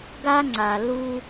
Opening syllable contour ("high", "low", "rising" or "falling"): high